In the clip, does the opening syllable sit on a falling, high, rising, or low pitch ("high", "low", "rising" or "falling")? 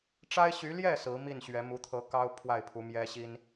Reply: high